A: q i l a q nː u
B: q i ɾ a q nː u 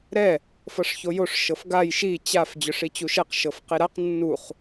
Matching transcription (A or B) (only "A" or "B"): B